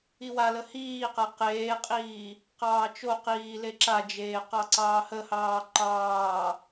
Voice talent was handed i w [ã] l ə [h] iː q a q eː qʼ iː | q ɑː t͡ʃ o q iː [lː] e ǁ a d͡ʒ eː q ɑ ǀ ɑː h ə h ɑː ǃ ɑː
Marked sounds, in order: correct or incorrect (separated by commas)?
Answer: incorrect, correct, incorrect